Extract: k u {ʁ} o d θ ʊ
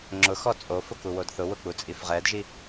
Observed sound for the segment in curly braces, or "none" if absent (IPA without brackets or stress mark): w